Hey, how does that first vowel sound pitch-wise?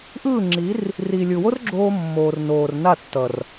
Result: falling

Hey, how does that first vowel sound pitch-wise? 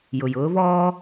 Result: low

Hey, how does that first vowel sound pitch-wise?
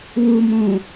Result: low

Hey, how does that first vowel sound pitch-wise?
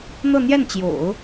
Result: falling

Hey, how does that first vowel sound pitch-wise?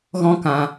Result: high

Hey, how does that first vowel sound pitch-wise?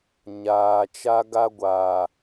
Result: low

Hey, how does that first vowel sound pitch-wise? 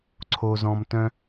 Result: low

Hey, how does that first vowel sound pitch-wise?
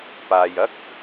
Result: low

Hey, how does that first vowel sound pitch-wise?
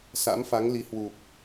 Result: rising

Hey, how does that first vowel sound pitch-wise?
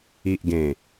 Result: low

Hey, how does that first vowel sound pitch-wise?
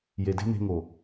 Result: low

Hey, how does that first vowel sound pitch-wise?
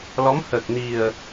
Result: rising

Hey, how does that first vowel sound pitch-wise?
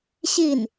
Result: falling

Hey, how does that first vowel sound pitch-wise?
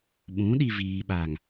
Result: rising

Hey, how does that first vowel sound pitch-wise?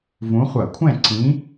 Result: rising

